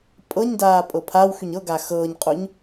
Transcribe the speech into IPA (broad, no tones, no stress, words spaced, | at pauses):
pʼɤɲdaː pʼɤpʰawxyɲ ɤ ɡaxɤːɲqʼuɲ